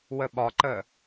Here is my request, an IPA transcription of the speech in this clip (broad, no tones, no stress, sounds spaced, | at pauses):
w ə ɓ ɒ ǃ ə